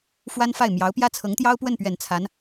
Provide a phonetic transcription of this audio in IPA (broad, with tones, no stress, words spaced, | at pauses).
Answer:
fwa˥nfa˥˩ɪ̯ mjɑ˧˥ʊ̯pjä˥t͡sʰɤ˧˥ŋt̪jɑ˥ʊ̯ pwə˥˩npɥɛ˨˩n t͡sʰa˧˥n